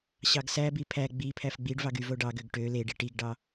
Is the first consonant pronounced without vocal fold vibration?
yes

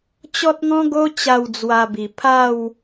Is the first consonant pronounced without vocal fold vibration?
yes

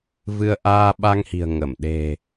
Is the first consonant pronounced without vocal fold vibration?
no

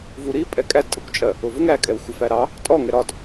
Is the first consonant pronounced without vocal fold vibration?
no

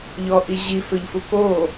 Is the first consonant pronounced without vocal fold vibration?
no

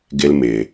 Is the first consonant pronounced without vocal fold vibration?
no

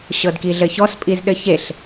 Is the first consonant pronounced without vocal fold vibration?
yes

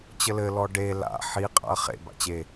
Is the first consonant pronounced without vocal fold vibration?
yes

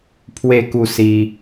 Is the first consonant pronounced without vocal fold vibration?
yes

